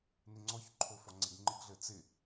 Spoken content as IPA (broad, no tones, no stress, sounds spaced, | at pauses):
n ɪ ŋ͡ǀ ɔ ç ǃʰ o f ɔ ŋ͡ǀ ɪ ɡ ŋ͡ǃ ɪ ɡ ɮ ɘ t͡s ɪ